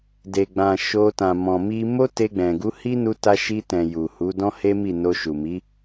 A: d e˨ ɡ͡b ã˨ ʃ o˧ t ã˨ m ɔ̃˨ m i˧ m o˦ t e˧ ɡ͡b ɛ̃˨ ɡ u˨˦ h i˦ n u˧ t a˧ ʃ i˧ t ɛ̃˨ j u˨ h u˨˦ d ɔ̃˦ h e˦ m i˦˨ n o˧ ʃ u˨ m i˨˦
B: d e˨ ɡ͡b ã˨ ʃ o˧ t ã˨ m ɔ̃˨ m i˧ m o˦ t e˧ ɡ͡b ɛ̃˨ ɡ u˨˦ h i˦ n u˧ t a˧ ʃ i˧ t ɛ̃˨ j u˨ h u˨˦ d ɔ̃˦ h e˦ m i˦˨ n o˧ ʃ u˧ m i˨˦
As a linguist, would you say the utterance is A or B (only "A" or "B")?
A